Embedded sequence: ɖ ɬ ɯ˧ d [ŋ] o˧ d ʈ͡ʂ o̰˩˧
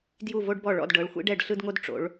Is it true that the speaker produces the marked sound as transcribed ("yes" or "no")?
yes